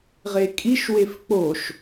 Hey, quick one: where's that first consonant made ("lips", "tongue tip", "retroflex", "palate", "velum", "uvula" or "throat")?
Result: uvula